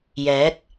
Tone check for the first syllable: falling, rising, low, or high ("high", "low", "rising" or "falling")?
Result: rising